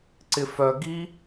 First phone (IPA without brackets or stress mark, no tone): ǀ